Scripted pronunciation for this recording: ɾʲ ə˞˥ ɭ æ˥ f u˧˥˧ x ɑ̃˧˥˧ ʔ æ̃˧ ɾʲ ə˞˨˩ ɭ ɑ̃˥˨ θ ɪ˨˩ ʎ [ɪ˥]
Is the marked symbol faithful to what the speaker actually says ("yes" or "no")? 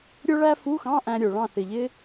yes